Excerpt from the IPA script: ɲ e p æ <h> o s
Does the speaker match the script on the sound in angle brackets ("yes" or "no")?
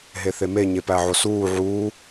no